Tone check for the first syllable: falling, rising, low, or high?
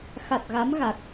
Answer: low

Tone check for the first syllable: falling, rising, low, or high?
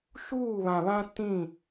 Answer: falling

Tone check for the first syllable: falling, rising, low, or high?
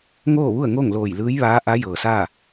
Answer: falling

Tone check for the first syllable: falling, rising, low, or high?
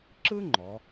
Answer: high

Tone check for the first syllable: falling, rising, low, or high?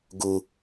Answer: low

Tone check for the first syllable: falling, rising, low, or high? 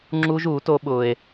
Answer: high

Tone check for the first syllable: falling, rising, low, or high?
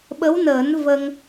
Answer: rising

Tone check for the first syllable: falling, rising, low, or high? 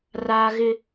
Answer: high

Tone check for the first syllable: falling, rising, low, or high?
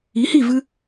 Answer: rising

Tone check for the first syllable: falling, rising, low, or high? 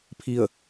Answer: falling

